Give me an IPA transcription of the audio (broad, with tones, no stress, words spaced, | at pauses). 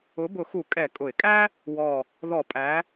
ʊ˨˦ bʊ˨˩˦xu˨˩˦ kʼɛ˨˩˦ kʼʊ˨˩˦ɪ̯kʼæ˥ | wɔ˨˩ | ðɔ˨˩˦ pʼæ˨˦